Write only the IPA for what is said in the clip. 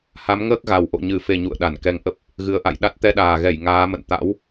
ha˨˦mŋəː˦˥k̚ɣa˨˩w ʔo̰˧˨ɲɨ˨˩fe˨˩ ɲṵ˧˨ə̯ɗa˧˩nkɛ˧ŋ ʔə˦˥p̚ | ɣɨ˨˦ə̯ʔa̰˧˨j ɗa˦˥t̚ t̪ɛ˧ɗaː˨˩ɣɛ˧˩j ŋaː˨˦mə̰˧˨n t̪a̰˧˥w

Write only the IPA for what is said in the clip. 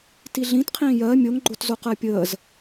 tiɮĩtqʰĩː jɜ mʲoŋɡ͡ǃotzoq ɜpʲəːz

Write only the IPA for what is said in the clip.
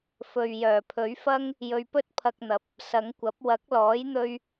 fɵ˨ɥjœː˨˩pʰɵ˨˥ɥfɐ˥ŋ | jɵ˧ɥpɵ˥t̚pʰɐ˧k̚n̪ɐ˨˥p̚ | sɐ˨˧ŋkʷɐ˨˥p̚ wɐ˨˥k̚lɔː˨˥jn̪ɵ˧ɥ

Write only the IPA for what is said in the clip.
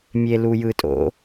mʲelujɯtʼo̰

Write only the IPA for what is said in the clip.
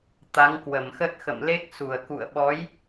t̪a˨˦ŋkwə˧˩mxə˦˥t̚ xə̰˧˨mle˦˥k̚su˧˩ə̯ kṵ˧˨ə̯ɓɔ˨˦j

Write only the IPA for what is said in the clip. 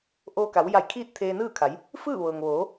ʔoː˧ka˩˧wja˧˩j kʰiː˥˨t̚ t̪ʰeː˧nɯː˥˨kʰa˩˧j | fɯː˥˨ʋɤː˩ŋʋoː˩˧

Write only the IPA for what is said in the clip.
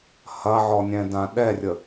hɐʕɔnʲɛ̃ dãɗɛrʲə

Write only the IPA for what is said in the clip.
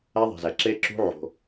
æ˦ðˤi̤˨zæ˨ ǁe˦ǁṳ˦ ʕo̤˦

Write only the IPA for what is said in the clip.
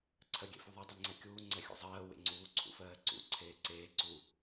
ǀʰɜɡʲḛfuðˤɛ dˤeŋ͡ǀɛkʲuː ŋ͡ǀɛxʲṵzˤɜː wḛŋ͡ǀuː ǀʰṵfɜːǀṵ ǀʰeːǀeː ǀu

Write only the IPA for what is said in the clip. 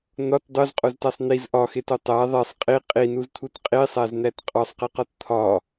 n̪ɒt dˤozqʼoztæsˤ n̪iz ʔɒxeto tˤæ ðˤesˤ qʼi qʼinuzt̪ʰut qʼisˤæzn̪æt qʼɒsˤqiqɒt t̪ʰɒ

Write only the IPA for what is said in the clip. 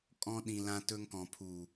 kʼɔ̃˧ ɗĩ˨ lã˧tɵ˧ŋkɔ̃˨ pʰu˨

